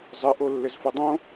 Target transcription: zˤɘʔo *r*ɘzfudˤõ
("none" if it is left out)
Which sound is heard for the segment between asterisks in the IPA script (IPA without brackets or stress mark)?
lː